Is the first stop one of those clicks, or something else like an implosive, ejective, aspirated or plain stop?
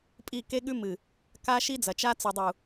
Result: ejective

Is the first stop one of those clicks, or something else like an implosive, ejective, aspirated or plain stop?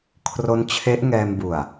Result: aspirated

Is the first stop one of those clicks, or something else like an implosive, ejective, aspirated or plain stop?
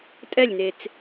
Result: ejective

